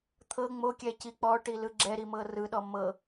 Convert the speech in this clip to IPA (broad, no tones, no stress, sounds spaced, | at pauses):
t̪ʰ ɤ ŋ͡m o kʲ ɛ c i k͡p ɔ ʈ i l ɯ ɡ͡ǁ ɛ ɾ i m ɤ r ɯ ɗ ɔ m ɤ